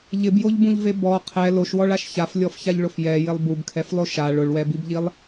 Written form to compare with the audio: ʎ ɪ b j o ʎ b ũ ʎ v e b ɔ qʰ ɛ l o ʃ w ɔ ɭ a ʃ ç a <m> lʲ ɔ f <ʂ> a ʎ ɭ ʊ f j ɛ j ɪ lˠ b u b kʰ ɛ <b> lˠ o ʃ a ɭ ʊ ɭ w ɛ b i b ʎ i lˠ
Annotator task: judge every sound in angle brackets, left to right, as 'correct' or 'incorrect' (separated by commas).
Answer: incorrect, incorrect, incorrect